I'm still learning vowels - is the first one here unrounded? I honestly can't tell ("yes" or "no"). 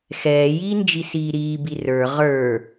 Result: yes